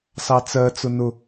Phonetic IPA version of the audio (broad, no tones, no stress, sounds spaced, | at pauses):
s ɑ t͡s ɜ t͡s ʊ n ʊ